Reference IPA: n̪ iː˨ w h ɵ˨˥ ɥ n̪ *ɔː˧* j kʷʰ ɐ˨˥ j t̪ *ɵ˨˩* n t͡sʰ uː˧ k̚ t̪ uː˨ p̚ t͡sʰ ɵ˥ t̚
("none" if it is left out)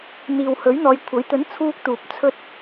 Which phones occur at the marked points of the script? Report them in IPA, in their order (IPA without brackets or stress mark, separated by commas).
ɔː˨˧, ɵ˨˥